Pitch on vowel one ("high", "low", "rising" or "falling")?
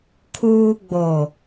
high